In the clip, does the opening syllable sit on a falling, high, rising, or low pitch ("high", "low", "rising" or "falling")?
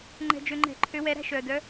low